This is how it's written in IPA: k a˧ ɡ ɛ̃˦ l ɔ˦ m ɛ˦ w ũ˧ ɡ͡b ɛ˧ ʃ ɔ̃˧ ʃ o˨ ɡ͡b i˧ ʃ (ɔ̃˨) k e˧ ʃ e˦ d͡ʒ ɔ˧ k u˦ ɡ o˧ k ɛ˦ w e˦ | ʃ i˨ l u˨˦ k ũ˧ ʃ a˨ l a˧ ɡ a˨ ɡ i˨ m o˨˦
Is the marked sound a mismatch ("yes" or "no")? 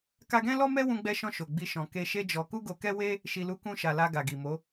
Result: no